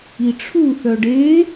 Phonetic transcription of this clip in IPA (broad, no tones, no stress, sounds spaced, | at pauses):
i ʈ͡ʂʰ u θ œ ɖ e